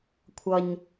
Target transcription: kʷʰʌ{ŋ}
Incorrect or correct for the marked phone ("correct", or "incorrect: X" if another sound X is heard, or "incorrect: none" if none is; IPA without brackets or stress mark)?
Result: incorrect: ɲ